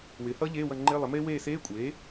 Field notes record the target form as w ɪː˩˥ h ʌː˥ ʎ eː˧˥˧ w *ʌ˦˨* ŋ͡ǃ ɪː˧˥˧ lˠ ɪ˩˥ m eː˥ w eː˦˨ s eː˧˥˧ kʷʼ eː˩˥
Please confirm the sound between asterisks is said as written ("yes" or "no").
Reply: yes